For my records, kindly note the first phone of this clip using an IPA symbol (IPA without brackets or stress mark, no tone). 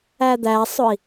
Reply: æ